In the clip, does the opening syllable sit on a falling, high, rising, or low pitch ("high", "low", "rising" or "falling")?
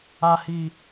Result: low